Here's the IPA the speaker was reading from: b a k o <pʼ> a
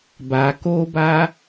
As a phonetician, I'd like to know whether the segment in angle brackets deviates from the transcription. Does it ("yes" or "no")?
yes